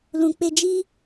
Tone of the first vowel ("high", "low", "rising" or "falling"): low